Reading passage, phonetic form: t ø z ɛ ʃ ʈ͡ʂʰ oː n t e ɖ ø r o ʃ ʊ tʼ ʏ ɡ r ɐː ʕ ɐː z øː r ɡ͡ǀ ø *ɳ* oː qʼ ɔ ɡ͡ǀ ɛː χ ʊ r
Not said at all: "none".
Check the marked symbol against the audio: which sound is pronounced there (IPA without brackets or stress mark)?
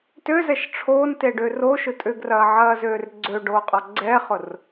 ɖ